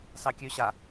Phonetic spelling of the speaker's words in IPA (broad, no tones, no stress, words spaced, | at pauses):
sɑkʲøɕa